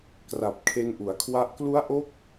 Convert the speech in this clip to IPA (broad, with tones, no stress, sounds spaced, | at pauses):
k r a˨˩ p̚ kʰ e˧ n ʔ u˩˦ a̯ kʰ w a˦˥ ʔ k l u˦˥ a̯ ʔ o˦˥ k̚